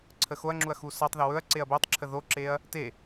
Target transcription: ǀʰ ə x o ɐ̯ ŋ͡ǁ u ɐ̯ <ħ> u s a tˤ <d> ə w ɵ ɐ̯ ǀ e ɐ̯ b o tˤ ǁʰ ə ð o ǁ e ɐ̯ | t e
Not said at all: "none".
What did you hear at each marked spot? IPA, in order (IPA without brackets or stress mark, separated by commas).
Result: x, ð